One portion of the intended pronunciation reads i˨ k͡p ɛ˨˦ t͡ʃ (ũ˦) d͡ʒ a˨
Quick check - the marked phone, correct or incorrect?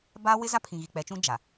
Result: correct